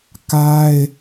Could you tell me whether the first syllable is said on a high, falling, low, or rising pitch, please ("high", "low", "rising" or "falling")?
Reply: high